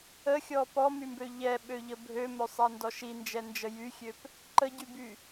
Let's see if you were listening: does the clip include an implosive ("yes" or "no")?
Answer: yes